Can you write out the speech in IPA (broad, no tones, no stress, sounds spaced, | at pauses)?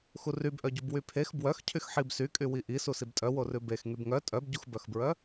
x u r y b ʔ œ ɟ u b w y pʰ e x b w œ x cʰ y x ħ i b s y kʼ y w i ʔ i s u s i b tʼ œ w o r ʉ b e x ŋ y b ŋ œ tʼ œ b ɟ u x b œ x b ɹ œ